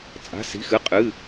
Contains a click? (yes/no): no